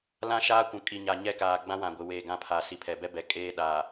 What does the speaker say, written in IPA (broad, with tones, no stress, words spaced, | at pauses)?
lã˦ ʃaː˦kʷũ˨ kʼi˨ɲa˨ɲɛ˦ kaː˨ɡ͡bã˦wã˨ɡʷɪ˨ weː˨ ɡã˦˨pʰaː˨ si˨pʰɛ˨bɛ˦ bɛ˨kʼeː˦ ɗaː˨